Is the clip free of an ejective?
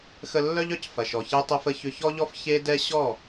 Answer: yes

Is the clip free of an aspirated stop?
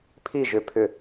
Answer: no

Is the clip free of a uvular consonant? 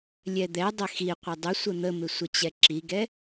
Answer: no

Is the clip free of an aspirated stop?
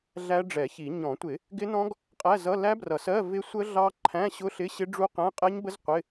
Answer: no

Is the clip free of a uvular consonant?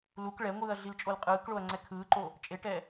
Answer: no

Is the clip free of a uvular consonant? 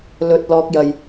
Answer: yes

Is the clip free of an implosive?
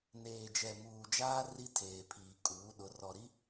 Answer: no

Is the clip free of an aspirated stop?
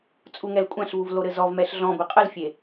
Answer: yes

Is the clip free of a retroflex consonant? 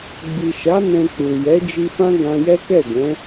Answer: yes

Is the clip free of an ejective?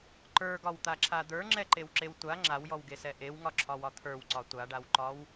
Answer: yes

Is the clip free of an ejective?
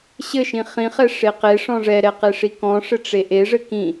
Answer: yes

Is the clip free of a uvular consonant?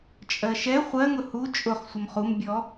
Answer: no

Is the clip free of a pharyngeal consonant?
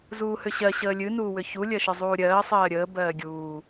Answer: yes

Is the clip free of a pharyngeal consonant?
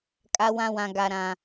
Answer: yes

